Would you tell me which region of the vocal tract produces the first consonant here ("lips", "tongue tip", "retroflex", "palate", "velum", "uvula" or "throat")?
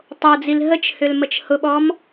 tongue tip